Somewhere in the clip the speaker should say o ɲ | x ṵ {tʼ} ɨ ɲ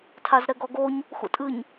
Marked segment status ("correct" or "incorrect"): correct